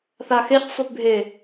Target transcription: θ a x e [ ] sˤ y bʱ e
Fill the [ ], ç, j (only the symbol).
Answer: ç